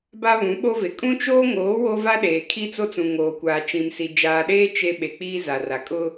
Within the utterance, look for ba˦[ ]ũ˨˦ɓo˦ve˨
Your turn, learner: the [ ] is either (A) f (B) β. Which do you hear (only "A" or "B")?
B